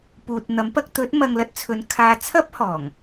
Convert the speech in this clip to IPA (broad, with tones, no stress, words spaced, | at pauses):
puː˨t̚n̪ɐ˨˥m pɐ˧k̚t̪ɵ˨˥t̚ mɐ˧ŋlɐ˧t̚t͡sʰɵ˨˧nkʰaː˧ t͡sʰɐ˥p̚hɔː˨˩ŋ